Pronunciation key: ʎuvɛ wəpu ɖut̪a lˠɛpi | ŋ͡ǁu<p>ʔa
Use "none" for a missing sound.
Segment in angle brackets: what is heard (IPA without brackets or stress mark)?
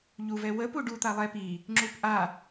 p